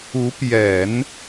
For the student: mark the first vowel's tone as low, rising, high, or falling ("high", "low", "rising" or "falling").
rising